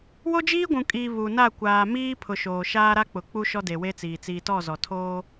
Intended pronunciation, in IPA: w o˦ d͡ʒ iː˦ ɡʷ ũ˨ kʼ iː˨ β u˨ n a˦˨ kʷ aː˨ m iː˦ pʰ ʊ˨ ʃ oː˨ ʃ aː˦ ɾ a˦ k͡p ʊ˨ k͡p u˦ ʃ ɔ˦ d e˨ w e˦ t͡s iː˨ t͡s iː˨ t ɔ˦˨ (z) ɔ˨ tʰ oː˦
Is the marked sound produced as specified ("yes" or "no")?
yes